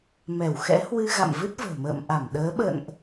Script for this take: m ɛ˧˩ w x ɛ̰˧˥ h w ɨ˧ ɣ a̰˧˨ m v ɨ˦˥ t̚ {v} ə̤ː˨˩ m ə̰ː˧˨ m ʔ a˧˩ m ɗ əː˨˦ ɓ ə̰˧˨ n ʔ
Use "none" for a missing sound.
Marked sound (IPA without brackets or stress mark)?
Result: v